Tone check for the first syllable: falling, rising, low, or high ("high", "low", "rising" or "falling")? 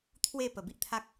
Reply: falling